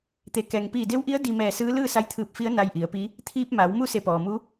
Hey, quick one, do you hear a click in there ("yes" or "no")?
no